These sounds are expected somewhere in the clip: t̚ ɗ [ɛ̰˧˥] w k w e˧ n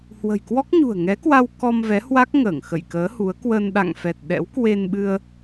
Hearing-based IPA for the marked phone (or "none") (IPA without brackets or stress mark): ɛ̰˧˥